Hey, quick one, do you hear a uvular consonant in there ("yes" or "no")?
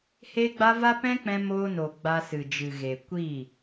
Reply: no